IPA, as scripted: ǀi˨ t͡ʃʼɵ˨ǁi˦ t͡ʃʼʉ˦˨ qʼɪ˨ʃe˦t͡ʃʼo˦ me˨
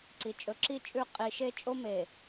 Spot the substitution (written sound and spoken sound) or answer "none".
ɪ˨ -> i˨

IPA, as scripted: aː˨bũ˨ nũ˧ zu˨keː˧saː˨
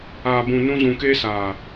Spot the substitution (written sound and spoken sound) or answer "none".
u˨ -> ũ˨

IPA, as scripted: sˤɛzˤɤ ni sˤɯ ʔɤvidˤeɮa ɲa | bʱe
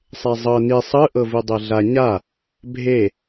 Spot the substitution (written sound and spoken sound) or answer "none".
none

